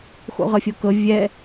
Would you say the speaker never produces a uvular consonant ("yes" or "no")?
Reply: no